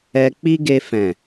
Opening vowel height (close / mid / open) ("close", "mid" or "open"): mid